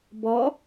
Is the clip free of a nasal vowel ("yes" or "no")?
yes